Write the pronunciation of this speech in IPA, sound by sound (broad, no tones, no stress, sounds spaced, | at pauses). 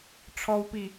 ʈ͡ʂʰ ɔ w p i